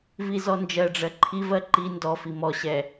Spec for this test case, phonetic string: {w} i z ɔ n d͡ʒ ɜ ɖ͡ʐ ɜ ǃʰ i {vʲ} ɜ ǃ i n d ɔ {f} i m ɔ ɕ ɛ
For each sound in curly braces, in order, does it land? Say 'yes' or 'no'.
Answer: no, no, yes

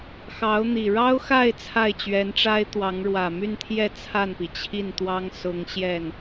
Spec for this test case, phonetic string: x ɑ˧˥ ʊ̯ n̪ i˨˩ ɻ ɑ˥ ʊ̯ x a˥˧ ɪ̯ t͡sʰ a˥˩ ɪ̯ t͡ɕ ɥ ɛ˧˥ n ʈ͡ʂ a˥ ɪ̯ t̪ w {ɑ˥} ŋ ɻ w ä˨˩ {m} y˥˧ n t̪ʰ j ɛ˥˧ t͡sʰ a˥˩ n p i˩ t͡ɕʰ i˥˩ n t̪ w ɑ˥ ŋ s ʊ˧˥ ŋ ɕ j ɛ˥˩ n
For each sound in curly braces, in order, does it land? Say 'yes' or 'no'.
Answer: no, yes

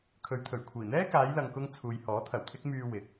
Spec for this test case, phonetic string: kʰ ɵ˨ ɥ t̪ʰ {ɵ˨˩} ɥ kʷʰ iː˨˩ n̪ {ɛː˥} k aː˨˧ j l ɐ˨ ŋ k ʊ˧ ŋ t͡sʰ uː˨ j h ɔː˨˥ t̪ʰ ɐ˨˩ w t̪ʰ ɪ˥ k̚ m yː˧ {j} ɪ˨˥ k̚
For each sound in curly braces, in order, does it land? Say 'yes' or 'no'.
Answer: yes, yes, no

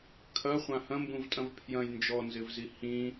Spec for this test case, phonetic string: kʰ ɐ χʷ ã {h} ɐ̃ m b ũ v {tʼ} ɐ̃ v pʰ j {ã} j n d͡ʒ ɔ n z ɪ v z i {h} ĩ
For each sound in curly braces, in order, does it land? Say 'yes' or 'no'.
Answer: yes, yes, no, yes

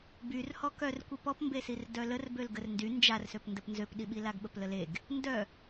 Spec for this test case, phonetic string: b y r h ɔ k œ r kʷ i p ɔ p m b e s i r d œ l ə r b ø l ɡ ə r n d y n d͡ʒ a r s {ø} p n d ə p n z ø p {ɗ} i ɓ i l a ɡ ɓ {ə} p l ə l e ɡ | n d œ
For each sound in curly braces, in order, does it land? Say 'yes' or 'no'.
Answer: yes, yes, yes

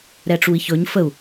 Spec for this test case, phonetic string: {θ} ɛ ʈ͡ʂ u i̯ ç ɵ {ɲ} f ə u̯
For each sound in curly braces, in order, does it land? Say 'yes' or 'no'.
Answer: no, yes

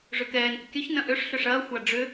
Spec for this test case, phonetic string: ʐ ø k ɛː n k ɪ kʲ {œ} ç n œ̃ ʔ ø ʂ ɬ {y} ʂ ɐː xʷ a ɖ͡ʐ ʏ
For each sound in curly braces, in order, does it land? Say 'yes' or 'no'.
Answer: yes, no

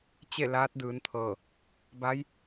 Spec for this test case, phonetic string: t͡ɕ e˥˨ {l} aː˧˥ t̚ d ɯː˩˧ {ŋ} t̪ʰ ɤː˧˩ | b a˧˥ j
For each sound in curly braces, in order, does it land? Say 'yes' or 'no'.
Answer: yes, no

